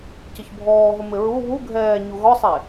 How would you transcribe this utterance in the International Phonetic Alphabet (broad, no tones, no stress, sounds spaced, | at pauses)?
c ɪ ç bʱ ɔː ɦ o m ɪ ɹ u β u ɡʱ ɛː ɲ u ɣ ɔ sˤ e